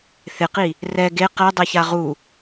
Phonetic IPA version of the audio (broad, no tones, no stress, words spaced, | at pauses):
θɪqi | rɛ ɡe qɛdˤɛça ʁu